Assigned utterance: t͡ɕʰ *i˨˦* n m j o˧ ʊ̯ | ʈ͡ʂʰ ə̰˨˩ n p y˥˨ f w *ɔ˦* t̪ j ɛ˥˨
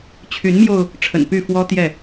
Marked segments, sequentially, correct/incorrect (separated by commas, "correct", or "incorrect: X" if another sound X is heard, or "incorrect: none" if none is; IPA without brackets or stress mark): incorrect: y˨˦, correct